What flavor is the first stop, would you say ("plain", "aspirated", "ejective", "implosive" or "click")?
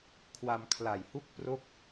aspirated